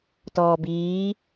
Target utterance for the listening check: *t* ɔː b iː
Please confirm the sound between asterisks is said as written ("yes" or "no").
yes